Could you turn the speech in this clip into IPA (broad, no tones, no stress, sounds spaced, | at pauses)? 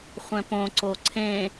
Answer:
χʷ ɛ̃ p õ ǀ o ǀʰ ẽ